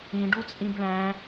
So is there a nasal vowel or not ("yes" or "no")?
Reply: yes